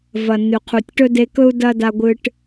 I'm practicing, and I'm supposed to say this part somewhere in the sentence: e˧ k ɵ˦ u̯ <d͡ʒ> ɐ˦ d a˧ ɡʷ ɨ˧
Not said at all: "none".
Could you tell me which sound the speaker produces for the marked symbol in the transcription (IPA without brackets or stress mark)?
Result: d